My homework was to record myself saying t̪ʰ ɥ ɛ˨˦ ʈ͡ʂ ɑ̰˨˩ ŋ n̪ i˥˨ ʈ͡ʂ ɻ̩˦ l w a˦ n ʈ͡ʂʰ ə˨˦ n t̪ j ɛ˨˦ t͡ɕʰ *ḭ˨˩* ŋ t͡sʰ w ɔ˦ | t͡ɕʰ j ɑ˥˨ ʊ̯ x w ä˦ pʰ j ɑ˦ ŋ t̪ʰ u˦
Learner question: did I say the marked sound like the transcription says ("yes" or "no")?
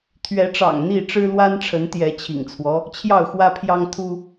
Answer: yes